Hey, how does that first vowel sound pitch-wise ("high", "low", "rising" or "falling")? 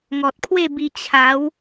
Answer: low